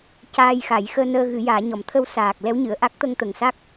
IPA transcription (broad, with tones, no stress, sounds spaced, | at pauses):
c aː˧ j x a˨˩˦ j x əː˧ n əː˧ ɣ ɨ˨˩˦ j aː˨˩˦ ɲ ɔ˨˩˦ m t̪ʰ ə˧ w s aː˨˩ k̚ l ɛ˧˥ w ɲ ɨ˨˩˨ ə̯ ʔ a˦˥ k̚ t̪ ə˧ ŋ t̪ ə˨˩ ŋ s a˦˥ k̚